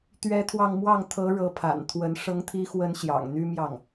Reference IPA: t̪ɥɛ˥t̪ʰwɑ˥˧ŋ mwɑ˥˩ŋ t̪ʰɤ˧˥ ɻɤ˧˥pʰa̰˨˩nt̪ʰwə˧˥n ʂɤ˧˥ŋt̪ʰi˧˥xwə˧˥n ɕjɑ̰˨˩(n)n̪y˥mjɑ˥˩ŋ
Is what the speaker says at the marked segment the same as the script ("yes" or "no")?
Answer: no